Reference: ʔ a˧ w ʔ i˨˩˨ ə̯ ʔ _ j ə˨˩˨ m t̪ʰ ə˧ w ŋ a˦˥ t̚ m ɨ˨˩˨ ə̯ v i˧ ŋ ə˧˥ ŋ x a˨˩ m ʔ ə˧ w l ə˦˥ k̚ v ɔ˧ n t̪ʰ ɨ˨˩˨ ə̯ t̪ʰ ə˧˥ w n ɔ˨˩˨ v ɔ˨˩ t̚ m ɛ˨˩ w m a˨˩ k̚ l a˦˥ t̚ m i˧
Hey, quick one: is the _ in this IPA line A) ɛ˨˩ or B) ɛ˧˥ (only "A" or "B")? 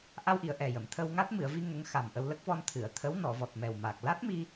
A